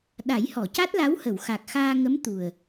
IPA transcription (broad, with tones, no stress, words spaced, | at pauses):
ɗa˨˩˦jhɔ˨˩˨ca˦˥t̚la˧˥w hə˨˩˨wxa˨˩k̚xaː˧ŋə˧˥m t̪u˨˩ə̯